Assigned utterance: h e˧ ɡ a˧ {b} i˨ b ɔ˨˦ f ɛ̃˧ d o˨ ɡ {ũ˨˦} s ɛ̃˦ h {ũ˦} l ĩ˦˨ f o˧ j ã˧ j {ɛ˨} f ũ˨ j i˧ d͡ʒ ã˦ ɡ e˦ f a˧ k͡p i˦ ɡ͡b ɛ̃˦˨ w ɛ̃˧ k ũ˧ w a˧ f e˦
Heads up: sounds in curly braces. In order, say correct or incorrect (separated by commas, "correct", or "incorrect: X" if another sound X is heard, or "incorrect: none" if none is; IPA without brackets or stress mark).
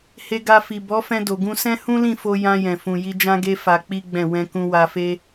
incorrect: f, incorrect: ũ˧, correct, incorrect: ɛ̃˨